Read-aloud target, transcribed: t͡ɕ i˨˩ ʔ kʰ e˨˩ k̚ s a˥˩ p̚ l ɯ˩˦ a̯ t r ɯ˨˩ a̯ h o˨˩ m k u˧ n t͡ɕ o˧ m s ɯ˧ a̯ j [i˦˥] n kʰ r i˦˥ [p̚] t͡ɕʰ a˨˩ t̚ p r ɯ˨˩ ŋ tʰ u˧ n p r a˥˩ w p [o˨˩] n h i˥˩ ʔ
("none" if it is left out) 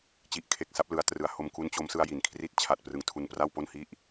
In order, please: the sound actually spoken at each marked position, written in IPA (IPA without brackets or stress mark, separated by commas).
i˩˦, t̚, o˥˩